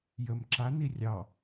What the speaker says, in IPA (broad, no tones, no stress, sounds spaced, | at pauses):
j ə m ǁ a n i rʲ ɑ